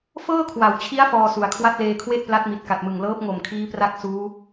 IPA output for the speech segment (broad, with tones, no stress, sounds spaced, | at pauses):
f ɤː˥˩ kʰ w a˩˦ w t͡ɕʰ i˦˥ a̯ f ɔː˧ s u˩˦ a̯ kʰ w a˥˩ t̚ l eː˧ kʰ w e˥˩ ʔ p l a˦˥ t̚ m i˨˩ t̚ k a˨˩ t̚ m ɯ˨˩ ŋ l ɤː˦˥ p̚ ŋ o˨˩ m kʰ iː˦˥ p r a˦˥ k̚ s uː˦˥